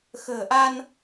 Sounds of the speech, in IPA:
x ə̤ː˨˩ ʔ a˧ n

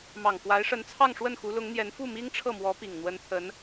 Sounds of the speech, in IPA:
m ɑ˨˩ ŋ k w a˧˥ ɪ̯ ʂ ə˧˥ n t͡sʰ ɑ˥˧ ŋ ʂ w ə˥˩ n x u˧˥ l ʊ˧˥ ŋ n̪ j ɛ˧˥ n f u˥˩ m i˥ ŋ ʈ͡ʂʰ ɤ˥˩ m w ɔ˧˥ p i˨˩ ŋ n̪ w ə˧˥ n t̪ʰ ə˧˥ n

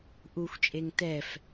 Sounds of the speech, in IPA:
ʔ u xʷ t͡ʃʼ e ŋ t ɛ f

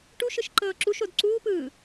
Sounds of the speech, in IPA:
ʈ u ʃ ɯ ʃ ǃ ɤː ǁ u ʃ o d ǀ uː p ɯː

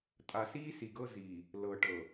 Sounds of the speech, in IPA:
tʼ a˨ s iː˦ s i˨ ɡ ɤ˦ z iː˨ | l ɤ˨ ʈ ɤ˨

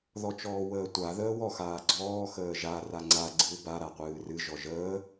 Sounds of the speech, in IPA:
ð ɔ t͡ʃ ɔː w əː tʷ a ð əː w ɔ x aː ɡ͡ǀ ɔː x əː ʒ a r a ŋ͡ǀ a ɡ͡ǀ ɨ w b a ɾ a qʷ ɨː r ɨ ʒ ɔ ʒ əː

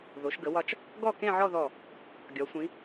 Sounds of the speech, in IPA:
ð o˩˧ ʃ ɡ ə˩˧ w ɒ˧ t͡ʃ | ɡ ɔ˥˧ k ẽ˥˧ ʕ ɔ˥˧ ð ɔ˧˩ | ɡʲ ɒ˩˧ sʷ ĩ˩˧

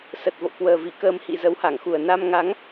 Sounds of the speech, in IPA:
s ə˨˩ t̚ v o̰˧˨ k w əː˨˩ v i˧˩ k əː˧ m h ḭ˧˨ z ə˨˦ w h a˧˩ ŋ x u˨˩ ə̯ n a˧ m ŋ a˨˦ ŋ

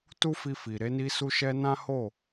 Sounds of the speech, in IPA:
t u˦ f i˧ f i˨ ɾ e˧ n i˧ s u˧ ʃ ɛ˧ n ã˦ h o˦˨

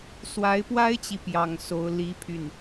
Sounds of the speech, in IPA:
s w a˧˥ ɪ̯ p w a˥ ɪ̯ t͡ɕ i˨ p j ɑ˥˩ ŋ s o˥ ʊ̯ l i˥ pʰ y˥˩ n

